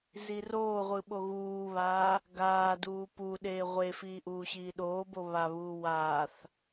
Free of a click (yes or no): yes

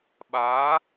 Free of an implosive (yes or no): no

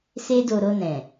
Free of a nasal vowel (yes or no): no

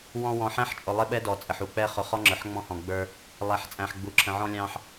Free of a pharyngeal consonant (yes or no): no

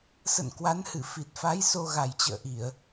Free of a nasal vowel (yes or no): yes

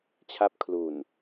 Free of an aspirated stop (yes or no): no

